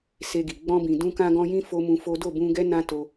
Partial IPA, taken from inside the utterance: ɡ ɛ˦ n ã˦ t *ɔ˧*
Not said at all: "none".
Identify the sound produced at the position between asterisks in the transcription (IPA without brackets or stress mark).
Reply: o˧